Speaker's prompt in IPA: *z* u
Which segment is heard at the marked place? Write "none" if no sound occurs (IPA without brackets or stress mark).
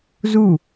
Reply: z